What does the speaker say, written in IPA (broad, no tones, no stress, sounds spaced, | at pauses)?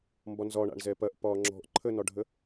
m b ɒ n z ɒ ɳ a̰ ɳ z ɛ p ɐ ʔ p ɒː ŋ͡ǁ ɔ̤ ʔ ǃʰ ə n ɒ ɖʱ ə